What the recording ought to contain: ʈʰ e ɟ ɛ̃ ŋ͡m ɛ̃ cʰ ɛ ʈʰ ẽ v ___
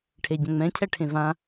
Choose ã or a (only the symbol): ã